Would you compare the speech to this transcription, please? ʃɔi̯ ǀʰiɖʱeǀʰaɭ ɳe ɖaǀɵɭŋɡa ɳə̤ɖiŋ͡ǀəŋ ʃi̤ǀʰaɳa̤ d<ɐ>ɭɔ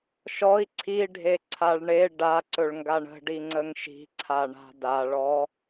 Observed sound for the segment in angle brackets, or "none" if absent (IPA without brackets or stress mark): a